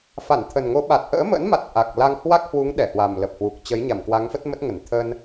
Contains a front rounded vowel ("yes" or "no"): no